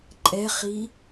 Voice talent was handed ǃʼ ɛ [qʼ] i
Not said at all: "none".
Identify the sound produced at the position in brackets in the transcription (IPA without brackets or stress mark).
χ